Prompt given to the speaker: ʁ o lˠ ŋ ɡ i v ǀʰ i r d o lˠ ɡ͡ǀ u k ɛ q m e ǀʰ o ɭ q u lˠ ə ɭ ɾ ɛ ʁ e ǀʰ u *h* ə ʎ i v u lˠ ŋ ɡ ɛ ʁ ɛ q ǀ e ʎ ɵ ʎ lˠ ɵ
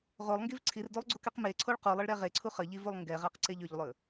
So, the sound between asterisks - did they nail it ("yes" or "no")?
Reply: no